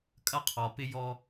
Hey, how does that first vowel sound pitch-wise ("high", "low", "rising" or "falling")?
high